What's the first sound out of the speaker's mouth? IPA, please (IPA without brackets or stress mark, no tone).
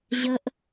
ʑ